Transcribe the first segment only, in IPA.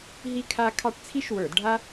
ɦ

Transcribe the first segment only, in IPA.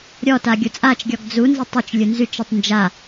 ɾʲ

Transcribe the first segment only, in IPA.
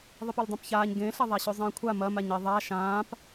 ðˤ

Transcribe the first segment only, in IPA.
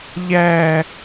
ʎ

